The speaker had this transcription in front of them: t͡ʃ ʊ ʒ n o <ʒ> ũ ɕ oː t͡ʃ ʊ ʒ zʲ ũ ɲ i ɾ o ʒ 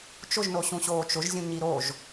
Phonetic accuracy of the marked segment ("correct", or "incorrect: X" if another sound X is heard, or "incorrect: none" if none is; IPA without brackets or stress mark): incorrect: ɕ